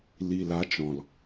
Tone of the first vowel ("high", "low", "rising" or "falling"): low